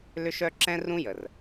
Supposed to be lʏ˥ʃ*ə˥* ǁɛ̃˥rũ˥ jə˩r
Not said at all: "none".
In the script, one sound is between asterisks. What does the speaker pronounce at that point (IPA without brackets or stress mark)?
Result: œ˥